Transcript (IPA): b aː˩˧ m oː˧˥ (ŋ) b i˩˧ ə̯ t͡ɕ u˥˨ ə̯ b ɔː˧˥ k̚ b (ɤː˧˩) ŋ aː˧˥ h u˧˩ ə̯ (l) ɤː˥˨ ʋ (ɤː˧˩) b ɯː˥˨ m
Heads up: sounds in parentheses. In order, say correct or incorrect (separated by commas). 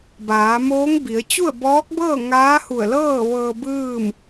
correct, incorrect, correct, incorrect